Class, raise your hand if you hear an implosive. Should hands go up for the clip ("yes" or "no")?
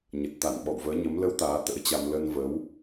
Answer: yes